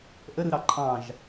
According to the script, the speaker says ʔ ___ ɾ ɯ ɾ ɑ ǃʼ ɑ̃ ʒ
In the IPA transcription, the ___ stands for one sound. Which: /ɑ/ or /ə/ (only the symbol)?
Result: ə